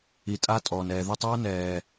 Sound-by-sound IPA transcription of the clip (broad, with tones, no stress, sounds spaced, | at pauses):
i˨ tʼ a˦ tʼ ɔː˨ n ɛː˨ ð u˧ tˤ ʌː˦ n ɛː˨